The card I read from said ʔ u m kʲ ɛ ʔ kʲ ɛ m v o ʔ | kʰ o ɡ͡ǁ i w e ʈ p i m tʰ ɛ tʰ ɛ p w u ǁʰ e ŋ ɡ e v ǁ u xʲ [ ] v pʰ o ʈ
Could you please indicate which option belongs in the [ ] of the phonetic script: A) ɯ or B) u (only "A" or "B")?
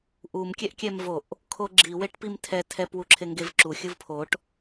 A